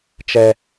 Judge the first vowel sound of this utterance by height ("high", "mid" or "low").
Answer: mid